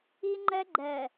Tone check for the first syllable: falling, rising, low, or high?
high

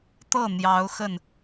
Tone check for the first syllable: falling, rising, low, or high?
falling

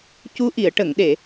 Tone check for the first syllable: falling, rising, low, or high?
rising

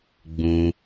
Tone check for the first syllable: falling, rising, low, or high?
high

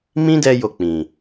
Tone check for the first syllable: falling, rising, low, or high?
high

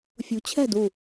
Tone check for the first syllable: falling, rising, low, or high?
rising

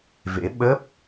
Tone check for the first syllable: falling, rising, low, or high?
rising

